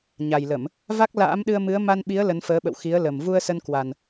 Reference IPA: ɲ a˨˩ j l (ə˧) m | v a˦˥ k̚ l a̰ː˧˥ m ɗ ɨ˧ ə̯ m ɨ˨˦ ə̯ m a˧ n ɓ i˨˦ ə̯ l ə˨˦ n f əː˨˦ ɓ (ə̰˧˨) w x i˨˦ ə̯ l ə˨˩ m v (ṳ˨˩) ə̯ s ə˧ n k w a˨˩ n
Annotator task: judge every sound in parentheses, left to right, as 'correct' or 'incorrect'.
incorrect: ə˧˩˨, correct, incorrect: u˧

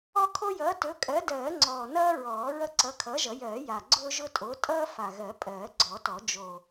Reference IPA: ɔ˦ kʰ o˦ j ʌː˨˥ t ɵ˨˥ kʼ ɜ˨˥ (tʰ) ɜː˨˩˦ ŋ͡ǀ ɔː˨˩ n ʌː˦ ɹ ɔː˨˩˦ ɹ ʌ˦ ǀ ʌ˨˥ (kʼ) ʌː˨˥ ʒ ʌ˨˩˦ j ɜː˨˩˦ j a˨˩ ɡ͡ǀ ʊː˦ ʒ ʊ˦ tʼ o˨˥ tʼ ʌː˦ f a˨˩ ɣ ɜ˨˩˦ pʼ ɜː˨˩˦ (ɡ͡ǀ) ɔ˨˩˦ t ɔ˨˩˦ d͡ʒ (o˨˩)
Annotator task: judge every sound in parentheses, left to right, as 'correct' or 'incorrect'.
incorrect: d, incorrect: kʰ, correct, correct

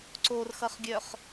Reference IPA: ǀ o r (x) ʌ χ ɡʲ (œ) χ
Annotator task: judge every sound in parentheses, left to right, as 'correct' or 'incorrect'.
correct, correct

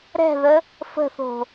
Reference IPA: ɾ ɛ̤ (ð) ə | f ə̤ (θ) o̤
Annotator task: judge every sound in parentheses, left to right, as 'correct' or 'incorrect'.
correct, correct

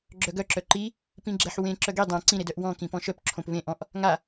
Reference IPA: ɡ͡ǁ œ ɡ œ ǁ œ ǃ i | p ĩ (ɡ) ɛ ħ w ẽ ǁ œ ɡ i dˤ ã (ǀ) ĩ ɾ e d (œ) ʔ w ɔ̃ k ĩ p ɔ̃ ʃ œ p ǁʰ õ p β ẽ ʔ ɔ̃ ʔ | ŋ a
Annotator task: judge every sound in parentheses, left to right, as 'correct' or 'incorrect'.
incorrect: ɡ͡ǁ, correct, correct

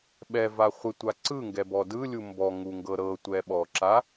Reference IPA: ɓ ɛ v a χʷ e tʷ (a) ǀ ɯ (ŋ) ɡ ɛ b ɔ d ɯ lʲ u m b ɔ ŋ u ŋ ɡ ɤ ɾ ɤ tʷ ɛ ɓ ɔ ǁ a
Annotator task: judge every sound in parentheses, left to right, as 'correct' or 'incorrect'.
correct, correct

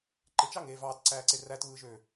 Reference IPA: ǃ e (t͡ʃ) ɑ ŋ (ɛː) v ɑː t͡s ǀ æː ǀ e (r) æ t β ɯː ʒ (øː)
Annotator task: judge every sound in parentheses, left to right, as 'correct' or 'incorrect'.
correct, incorrect: eː, correct, correct

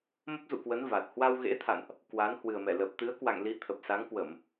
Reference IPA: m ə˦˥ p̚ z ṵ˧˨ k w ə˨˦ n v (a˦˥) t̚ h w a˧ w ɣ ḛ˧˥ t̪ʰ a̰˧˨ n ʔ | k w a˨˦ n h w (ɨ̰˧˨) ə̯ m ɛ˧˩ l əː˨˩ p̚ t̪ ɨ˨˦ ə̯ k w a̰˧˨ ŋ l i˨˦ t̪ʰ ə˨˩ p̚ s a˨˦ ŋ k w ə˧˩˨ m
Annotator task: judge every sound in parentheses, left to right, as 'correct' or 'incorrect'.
incorrect: a˨˩, incorrect: ɨ˨˩

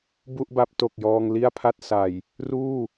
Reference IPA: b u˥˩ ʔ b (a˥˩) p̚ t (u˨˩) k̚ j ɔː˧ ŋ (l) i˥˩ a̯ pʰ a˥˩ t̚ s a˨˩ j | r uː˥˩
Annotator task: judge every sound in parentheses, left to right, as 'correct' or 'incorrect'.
incorrect: a˦˥, incorrect: o˨˩, correct

